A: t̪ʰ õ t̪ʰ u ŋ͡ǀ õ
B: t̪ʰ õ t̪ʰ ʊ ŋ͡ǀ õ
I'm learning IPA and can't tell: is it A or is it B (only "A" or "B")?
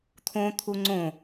A